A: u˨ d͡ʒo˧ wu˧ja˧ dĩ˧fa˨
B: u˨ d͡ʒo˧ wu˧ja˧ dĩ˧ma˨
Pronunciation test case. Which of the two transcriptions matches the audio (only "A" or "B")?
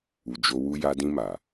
B